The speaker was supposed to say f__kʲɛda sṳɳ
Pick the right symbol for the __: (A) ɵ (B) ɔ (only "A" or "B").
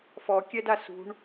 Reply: B